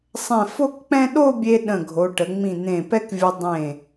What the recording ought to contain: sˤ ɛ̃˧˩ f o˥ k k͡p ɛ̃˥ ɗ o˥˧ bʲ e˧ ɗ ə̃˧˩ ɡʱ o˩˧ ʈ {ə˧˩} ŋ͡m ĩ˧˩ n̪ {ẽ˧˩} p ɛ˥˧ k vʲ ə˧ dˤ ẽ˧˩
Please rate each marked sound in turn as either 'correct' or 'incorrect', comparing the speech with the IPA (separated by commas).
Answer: incorrect, correct